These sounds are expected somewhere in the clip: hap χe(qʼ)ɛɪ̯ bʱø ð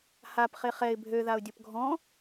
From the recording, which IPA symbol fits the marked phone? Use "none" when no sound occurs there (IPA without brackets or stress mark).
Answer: χ